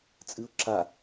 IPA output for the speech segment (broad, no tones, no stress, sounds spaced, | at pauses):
t͡sʼ ɨ ʊ̯ ǁ a